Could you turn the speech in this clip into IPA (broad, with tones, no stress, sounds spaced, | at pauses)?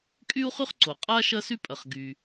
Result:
kʼ y˥ u̯ χ y˥ χ ǀ o˩ qʼ a˥ ʃ ɐ˥ s y˥ pʼ ɐ˩ χ ɡ y˩